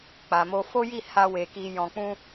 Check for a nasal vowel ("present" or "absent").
present